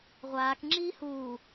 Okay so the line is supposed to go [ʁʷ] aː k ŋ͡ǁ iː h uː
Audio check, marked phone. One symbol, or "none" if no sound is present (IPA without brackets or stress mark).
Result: ʁʷ